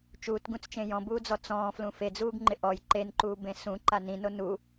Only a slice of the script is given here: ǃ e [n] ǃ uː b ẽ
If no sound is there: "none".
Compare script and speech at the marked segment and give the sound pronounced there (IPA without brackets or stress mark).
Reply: n